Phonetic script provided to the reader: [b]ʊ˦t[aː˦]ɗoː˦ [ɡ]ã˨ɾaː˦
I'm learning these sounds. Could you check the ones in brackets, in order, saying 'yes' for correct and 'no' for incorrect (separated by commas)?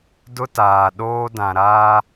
no, no, no